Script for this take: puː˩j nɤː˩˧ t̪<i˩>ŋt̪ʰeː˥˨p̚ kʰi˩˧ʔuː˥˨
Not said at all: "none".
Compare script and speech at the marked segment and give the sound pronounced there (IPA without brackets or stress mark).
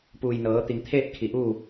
i˩